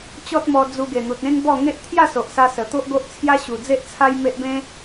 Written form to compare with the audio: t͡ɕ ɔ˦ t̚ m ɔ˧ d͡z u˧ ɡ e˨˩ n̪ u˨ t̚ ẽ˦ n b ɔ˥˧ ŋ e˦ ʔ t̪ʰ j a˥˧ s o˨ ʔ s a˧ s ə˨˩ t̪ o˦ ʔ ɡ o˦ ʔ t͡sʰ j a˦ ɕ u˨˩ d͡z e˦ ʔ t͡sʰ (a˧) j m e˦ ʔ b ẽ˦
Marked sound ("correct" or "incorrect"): incorrect